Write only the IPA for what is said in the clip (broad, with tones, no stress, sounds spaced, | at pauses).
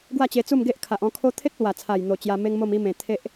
ɡ w a˥˧ t͡ɕ e˧ t͡s u˥˧ m ɡ e˦ ʔ kʰ a˨ ʔ ɔ̃˧ kʰ o˦ t̪ʰ e˦ k̚ l w a˨˩ t͡sʰ a˨˩ j n̪ o˨˩ t͡ɕ j a˧ m e˦ ŋ m o˥˧ m i˦ m ẽ˨˩ t̪ʰ e˦ ʔ